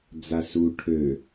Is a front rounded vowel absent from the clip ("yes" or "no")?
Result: no